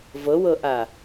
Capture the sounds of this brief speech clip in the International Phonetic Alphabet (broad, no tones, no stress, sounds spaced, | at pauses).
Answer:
v ɤ w ɤ ʔ a